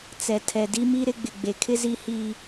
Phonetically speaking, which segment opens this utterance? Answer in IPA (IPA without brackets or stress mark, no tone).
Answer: t͡s